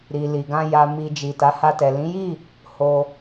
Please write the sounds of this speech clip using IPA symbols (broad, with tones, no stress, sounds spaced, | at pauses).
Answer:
ɾ i˨ l i˨ ɡ ã˧ j a˨ m i˨ d͡ʒ i˨ t a˨˦ h a˧ t ɛ˨ l ĩ˨˦ j i˦˨ | h o˧